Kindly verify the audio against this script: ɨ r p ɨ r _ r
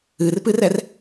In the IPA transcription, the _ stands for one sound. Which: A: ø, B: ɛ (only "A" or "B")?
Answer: B